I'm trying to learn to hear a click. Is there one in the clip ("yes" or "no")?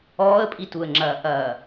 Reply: yes